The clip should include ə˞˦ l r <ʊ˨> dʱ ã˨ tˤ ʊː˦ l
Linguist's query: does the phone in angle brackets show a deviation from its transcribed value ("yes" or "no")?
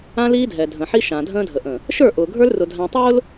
no